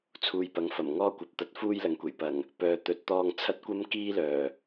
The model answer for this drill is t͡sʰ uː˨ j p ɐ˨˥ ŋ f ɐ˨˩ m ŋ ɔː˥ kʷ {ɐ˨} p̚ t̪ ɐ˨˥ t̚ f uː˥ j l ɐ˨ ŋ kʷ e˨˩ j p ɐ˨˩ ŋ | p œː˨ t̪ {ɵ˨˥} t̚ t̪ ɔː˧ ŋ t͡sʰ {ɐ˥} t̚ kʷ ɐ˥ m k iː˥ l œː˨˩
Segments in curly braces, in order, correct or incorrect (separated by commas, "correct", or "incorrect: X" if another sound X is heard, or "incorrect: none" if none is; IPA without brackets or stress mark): correct, correct, correct